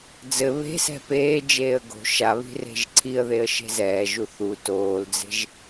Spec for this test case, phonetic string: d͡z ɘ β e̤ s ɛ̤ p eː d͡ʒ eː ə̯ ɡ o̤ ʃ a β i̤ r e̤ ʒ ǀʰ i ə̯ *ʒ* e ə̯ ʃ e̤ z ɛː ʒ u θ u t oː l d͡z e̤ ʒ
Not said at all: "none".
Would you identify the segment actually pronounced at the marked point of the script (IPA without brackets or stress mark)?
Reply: ð